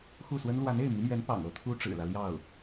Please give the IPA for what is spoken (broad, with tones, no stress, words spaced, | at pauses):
xu˥˩swə˥n lwa˧˥ne˥˩ɪ̯mi˧˥mɥɛ˧˥n pɑ̰˨˩ŋɤ˧˥ t̪ʰu˥ʈ͡ʂɻ̩˨˩lä˦ ljɑ˥˩ʊ̯